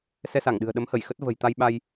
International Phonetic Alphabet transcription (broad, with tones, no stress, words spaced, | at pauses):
sɛ˧sa˧˩ŋɗɨ̤˨˩ə̯ɗə˨˦m hə˧˩jxə˦˥t̚ və̤˨˩j t̪a˧jɓa˧j